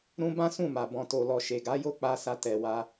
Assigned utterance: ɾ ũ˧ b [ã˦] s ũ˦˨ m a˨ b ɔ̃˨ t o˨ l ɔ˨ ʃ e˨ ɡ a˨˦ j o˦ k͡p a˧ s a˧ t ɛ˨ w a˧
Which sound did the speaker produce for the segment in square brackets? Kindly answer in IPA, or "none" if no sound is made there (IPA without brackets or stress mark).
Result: ã˦